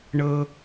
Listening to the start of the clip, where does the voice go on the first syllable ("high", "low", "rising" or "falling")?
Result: high